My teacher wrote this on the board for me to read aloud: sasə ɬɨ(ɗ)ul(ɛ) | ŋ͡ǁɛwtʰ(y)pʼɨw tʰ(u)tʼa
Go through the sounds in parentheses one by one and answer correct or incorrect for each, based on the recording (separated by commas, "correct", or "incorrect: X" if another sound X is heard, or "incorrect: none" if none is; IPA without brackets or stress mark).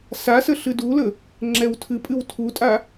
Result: incorrect: d, incorrect: ə, incorrect: ɨ, correct